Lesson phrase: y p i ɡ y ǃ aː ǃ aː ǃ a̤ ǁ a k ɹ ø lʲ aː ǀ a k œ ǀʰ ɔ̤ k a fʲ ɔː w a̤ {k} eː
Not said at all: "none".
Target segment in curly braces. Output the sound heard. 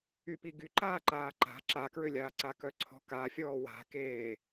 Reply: k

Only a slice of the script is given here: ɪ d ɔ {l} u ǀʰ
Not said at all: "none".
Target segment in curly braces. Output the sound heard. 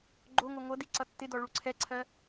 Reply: ɭ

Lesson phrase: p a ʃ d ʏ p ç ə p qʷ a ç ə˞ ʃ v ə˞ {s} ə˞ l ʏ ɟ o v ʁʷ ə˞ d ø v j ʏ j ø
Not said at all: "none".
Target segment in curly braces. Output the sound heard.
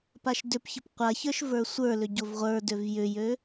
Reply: sʷ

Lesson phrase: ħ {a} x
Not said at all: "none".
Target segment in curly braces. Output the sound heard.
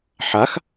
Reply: a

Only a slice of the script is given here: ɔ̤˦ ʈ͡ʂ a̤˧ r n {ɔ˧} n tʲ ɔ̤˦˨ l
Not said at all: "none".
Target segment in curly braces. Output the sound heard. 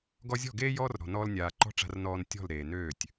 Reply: ɔː˧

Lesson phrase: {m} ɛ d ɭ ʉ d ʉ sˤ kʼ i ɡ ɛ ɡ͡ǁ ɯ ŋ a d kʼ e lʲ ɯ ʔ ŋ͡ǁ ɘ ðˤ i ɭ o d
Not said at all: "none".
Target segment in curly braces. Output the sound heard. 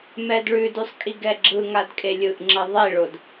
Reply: m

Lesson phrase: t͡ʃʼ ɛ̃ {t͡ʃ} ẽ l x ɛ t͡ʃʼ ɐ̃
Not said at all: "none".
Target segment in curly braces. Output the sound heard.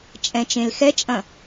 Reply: t͡ʃ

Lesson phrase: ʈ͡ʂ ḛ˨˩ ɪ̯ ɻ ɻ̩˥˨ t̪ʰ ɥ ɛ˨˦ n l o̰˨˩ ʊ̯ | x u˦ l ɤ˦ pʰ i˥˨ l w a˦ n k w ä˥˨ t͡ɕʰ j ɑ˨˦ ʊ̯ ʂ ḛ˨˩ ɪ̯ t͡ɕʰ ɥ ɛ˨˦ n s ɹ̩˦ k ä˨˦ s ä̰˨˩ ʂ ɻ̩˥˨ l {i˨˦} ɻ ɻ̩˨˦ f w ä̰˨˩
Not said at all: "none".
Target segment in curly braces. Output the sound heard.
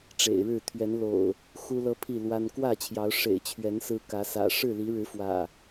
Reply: i˨˦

